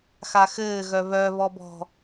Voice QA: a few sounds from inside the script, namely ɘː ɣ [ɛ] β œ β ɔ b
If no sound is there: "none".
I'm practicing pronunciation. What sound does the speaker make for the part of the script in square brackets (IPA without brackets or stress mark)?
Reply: œ